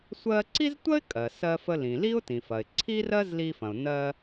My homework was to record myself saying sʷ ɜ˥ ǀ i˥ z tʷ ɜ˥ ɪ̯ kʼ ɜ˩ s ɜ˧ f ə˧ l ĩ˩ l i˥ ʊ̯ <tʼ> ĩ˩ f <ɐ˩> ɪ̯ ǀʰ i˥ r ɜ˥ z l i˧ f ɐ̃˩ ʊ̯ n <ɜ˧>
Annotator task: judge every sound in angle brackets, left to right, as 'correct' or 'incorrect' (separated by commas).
incorrect, correct, correct